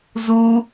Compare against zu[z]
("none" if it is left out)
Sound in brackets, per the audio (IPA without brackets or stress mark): none